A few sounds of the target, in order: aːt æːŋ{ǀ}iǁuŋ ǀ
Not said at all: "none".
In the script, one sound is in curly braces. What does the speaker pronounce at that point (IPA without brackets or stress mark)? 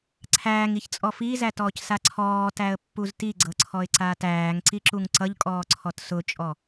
ǀ